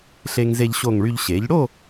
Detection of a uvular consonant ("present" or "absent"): absent